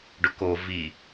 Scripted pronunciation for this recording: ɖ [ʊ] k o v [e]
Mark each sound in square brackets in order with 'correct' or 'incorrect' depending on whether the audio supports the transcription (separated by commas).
correct, incorrect